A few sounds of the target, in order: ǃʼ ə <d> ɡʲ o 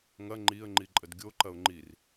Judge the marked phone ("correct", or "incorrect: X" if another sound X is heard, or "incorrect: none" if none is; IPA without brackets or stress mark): correct